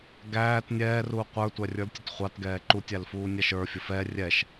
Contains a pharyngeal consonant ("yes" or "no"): no